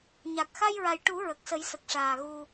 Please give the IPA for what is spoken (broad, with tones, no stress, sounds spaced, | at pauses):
ɲ a˨˩ k̚ x a˧ j ɹ a˨˩ j ʈ u˨˩˦ ɹ ə˨˩ k̚ s ə˨˩˦ j s ə˨˩ k̚ ʂ aː˨˩ ɣ u˧